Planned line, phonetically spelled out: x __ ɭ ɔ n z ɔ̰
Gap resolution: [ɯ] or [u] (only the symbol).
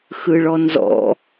ɯ